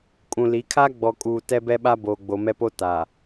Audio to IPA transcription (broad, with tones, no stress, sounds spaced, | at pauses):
kʼ ũ˨ l i˨˦ kʰ a˦ ɡ͡b ɔ˨ kʼ uː˨ t ɛ˦ b ɛ˦ ɓ a˦ b oː˨ ɡ͡b o˨ m ɛ˦ p o˦ t aː˨